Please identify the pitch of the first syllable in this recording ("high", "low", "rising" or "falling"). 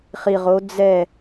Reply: low